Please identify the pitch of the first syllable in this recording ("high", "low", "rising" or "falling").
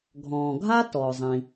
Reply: low